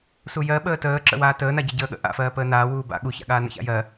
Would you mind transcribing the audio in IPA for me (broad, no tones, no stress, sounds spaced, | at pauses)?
s u j ɜ ɓ əː t əː ǁ ə̰ w aː t əː n a ɟ ə ɟ əː ɠ ə̰ ʔ a̰ f ɜː p əː n aː w uː b a̰ ɠ u ç a̰ ɠ aː n ə̰ ç a̰ j ɜ